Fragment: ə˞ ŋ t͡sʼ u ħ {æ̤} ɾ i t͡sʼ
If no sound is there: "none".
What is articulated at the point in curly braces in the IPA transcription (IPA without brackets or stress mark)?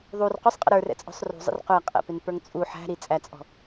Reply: æ̤